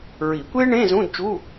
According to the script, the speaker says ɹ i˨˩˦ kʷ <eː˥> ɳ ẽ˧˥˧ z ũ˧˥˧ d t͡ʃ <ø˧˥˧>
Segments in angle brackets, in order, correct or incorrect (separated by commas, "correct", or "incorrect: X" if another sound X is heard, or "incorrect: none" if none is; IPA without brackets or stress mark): correct, incorrect: u˧˥˧